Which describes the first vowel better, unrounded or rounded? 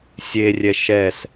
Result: unrounded